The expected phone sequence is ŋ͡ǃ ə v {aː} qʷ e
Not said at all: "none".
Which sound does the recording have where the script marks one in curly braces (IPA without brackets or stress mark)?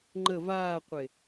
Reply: aː